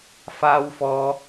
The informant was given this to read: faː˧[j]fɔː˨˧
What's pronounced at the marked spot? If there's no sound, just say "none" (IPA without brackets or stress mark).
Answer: w